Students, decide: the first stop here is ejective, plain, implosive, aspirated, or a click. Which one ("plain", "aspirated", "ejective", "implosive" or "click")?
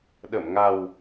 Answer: implosive